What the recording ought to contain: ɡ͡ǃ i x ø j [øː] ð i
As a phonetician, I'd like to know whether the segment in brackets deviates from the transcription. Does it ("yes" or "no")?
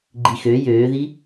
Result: no